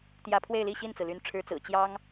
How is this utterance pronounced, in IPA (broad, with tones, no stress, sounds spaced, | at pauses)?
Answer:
t̪ j ä˧˥ pʰ w e˥˧ ɪ̯ l i˥˧ ɕ i˥˩ n t͡s ɹ̩˩ l y˧˥ n ʈ͡ʂʰ ɻ̩˧˥ t͡s ɹ̩˨˩ t͡ɕ j ɑ˥ ŋ